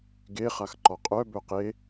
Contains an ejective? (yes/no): yes